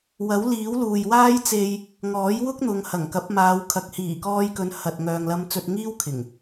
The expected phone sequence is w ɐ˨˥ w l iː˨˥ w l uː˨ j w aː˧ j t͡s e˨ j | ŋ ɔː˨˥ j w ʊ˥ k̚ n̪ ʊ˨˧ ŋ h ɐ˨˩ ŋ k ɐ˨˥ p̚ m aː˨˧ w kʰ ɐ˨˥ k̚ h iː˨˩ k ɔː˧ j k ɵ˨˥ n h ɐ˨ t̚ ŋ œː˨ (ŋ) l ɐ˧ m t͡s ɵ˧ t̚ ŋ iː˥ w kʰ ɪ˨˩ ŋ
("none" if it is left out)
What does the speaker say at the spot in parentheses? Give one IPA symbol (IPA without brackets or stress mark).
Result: ŋ